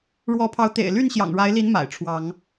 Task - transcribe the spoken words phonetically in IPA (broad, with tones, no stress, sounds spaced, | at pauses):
ɻ w ɔ˨˦ pʰ ɑ˨˦ ʊ̯ t̪ ḛ˨˩ ɪ̯ l y˥˨ n ɕ j ɑ̰˨˩ ŋ ɻ a˨˦ ɪ̯ l i˨˦ n m a̰˨˩ ɪ̯ ʈ͡ʂʰ w ɑ˨˦ ŋ